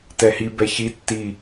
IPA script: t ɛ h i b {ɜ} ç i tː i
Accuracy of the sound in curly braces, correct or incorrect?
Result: incorrect: ɛ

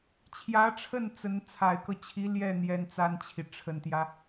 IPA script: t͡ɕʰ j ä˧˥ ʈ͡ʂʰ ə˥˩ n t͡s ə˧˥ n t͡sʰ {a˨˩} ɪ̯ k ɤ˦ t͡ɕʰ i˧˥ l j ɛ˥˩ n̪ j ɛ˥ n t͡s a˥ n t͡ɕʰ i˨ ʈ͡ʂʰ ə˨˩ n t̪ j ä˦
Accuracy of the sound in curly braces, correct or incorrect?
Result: correct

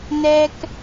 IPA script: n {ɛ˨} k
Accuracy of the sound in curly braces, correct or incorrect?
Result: incorrect: ɛ˦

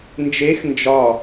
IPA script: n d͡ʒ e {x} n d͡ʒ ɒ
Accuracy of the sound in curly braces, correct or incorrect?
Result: correct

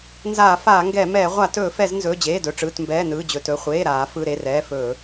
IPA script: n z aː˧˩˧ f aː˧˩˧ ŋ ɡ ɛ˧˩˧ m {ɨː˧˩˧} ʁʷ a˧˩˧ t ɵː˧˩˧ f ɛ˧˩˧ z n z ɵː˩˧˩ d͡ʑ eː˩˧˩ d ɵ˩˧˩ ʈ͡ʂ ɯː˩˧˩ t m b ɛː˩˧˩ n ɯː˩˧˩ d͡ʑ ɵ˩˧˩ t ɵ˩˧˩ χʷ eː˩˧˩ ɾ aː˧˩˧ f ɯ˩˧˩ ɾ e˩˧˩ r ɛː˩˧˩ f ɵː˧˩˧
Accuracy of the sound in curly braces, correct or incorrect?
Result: incorrect: ɛː˧˩˧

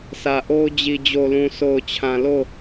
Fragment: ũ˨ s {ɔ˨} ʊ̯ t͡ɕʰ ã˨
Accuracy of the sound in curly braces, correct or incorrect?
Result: incorrect: o˨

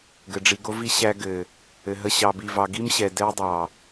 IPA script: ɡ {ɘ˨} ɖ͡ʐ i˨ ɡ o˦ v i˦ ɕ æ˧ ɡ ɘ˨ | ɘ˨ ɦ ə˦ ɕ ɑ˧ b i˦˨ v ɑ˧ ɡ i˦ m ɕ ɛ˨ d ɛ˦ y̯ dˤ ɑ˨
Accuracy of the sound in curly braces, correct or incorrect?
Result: correct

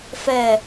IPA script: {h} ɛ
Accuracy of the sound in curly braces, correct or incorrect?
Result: incorrect: f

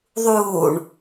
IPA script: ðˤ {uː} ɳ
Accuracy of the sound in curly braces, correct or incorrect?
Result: correct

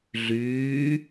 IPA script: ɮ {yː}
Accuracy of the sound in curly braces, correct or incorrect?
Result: correct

